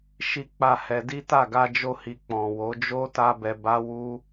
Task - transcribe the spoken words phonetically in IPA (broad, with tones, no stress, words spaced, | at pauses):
ʃi˦k͡pa˦˨hɛ˧ di˦ta˦˨ ɡa˧d͡ʒo˧hi˨ k͡pɔ̃˨wo˨˦ d͡ʒo˦ta˧ bɛ˧ba˦wu˦